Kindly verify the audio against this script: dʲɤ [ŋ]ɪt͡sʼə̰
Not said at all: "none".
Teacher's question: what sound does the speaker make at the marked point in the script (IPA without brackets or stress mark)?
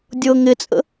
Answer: ŋ